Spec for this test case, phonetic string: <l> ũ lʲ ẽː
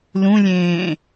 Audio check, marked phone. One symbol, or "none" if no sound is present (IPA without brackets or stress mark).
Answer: l